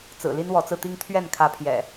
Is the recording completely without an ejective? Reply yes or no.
yes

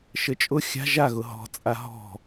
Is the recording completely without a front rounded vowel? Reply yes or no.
yes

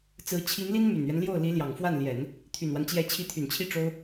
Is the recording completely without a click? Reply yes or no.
yes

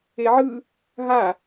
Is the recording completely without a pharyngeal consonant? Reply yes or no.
no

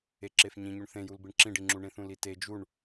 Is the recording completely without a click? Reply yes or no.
no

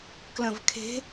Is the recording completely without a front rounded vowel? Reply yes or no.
yes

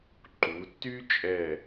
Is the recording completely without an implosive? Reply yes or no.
yes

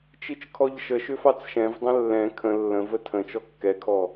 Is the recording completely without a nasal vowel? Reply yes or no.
no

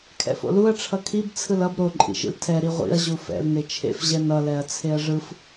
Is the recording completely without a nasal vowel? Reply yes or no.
yes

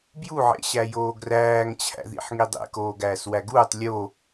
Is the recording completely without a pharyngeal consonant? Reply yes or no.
no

